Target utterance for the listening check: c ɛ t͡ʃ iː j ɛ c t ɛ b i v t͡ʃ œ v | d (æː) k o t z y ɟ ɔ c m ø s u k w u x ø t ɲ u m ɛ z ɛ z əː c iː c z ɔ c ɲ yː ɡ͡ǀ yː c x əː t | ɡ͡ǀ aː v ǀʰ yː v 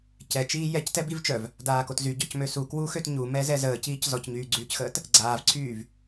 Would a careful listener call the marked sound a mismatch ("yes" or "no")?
yes